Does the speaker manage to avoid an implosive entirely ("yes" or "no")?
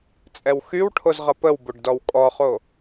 yes